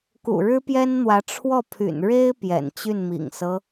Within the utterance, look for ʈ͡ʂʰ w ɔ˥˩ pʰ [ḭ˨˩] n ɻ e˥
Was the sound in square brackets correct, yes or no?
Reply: no